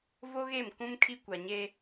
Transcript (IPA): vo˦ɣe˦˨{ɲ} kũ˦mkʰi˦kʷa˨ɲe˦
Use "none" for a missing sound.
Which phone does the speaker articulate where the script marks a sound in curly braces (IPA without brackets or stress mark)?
m